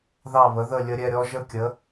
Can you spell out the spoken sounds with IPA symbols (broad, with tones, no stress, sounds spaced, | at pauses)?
ð ɑ˧˩ β ə˩˧ ð ə˧˩ lʲ ə˧ ɾʲ ɛ˥˧ ɾʲ ɔ˧ ʒ ə˧ kʲ ə˩˧